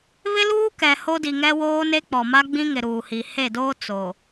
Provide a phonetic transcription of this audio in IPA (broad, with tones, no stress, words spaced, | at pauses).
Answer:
βɪ˦luː˦ kɛ˨ho˦di˨ŋɛ˦ woː˦ne˦k͡pɔ˨ ma˦ɡ͡bĩ˦ŋɪ˨ ɾuː˨hi˨ he˦˨doː˦ t͡so˨